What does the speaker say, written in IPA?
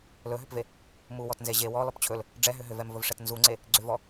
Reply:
l ɵ ɦ ʏ p v e | m u w ɔ t n z e ʑ e w ɔ l ɔ p t͡ɕʰ ɵ l | ɖ͡ʐ ɛ ɦ ʏ ɦ ʏ v ɛ m v ɵ v ʂ ɛ t n z u ŋ͡ǀ e | ɡ͡ǀ ʏ v ɔ

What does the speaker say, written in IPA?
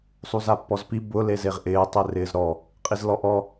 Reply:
sˤ u z a pː ɔ z p i b ʊ l e z e ʁ ʔ ɪː tˤ e r ɪː z ɾ ɔ | qʼ i z l ɔ ʔ ɔ

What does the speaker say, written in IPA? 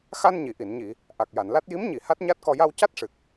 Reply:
x a˧ n ɲ i˨˩˨ ʔ i˨˩˨ n ɲ i˨˩˨ | ʔ a˨˩ k̚ j a˨˩˨ n l a˦˥ t̚ j i˧˥ m ɲ i˨˩˨ h a˦˥ t̚ ɲ a˦˥ t̚ k ɔ˧ j a˧ w c a˦˥ t̚ ʂ ɨ˨˩ k̚

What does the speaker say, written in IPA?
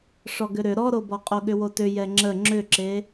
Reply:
ʂ ɔ ɡ ʏ ɾ ʏ ɾ ɔ ɾ o b ɔ qʼ o ɠ ʏ w o t ʏ j ɛ ŋ͡ǁ ə ŋ͡ǁ ʏ ǁ e

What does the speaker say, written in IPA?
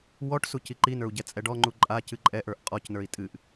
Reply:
w ɔ ʈ s u c i ǃ i n ə˞ u̯ ɟ ɛ t͡sʼ ɛ ɖ ɔ ŋ͡ǃ u ǃʼ a c ɨ ǃʼ ɛ ʔ ə˞ ʔ qʼ ɔ c n ə˞ i̯ tʼ ɨ ʔ

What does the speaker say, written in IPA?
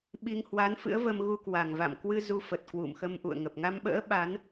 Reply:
ɓ i˧ ŋ h w a˨˦ n f ɨ̰˧˥ ə̯ v ə˧ m ɣ u˧ k w a˨˩ ŋ v a̰˧˨ m k w ɨ˧ z u˧ f ə˨˩ t̚ k w ṵ˧˨ m x ə˧ m ʔ ṵ˧˨ ə̯ ŋ ə˨˩ p̚ ŋ a˧ m ɓ ə̰ː˧˥ ɓ a˨˦ n

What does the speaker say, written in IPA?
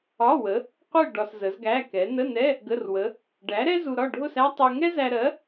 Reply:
ɒ˧˥˧ w ə˨˥ | qʷ ɛ˥˧ ɖ ɒ˧ s z ə˨˥ z ɡ æ˧˥˧ k ɛ˨˥ n ə˧˥˧ n ɛ˧˥˧ | ɡ ə˧˥˧ r w ə˨˥ | ɖ æ˨˥ ɾ ɛ˥ z u˧ ɾ ɒ˥˧ ɖʱ ʊ˥˧ s æ˥ tˤ u˧ ŋ ɛ˥ z æ˧ ɾ ɜ˨˥

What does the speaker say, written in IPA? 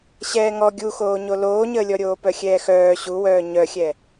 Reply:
ɕ ɛː ŋ ɔ ɡʲ u x oː ɲ o l oː ɲ əː lʲ ɔ ɾʲ oː p œ xʲ ɛː x œː ɕ u w œː ɲ œ xʲ ɛ

